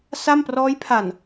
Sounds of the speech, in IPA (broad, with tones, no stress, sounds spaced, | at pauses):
s a˥˩ m p r ɔː˦˥ j pʰ a˨˩ n